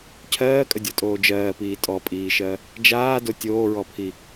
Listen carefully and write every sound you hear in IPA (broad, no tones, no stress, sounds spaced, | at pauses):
cʰ ɜː kʼ ə dʲ ɔ tʼ oː d͡ʒ ɜː p iː tʼ ɔ pʼ iː ʃ ɜ | d͡ʒ aː d o tʲ oː ɹ ɔ pʰ i